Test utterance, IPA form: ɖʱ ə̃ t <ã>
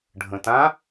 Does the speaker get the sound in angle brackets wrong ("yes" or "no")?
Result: no